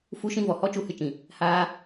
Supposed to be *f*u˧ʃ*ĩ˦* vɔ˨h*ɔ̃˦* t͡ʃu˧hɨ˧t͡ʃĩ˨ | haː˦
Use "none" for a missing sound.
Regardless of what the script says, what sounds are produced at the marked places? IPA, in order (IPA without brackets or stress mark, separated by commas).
f, ĩ˧, ɔ˦